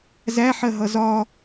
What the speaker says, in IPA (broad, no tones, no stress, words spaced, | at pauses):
zæħɜɦʌ zɒ